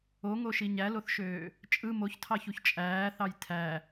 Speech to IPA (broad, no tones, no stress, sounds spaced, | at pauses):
o ŋ o ʃ i ɲ æ l o θ ʃ øː | t͡ʃʼ ɯ m o ç tʰ ɑ ç u ç t͡ʃʼ æː θ ɑ j tʰ æ